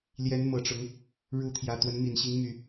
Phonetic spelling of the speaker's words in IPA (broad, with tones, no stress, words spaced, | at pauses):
ljɛ˨˦nmɤ˨˩ʈ͡ʂʊ˨˦ŋ | ɻu˨˦ t̪ʰjä˨˩t̪wə˨˦n mi˨˩nɕi˨˦ŋ my˨˩